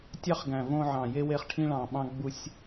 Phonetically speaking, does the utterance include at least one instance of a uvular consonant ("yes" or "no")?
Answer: yes